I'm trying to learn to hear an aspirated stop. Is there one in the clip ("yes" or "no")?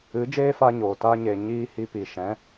no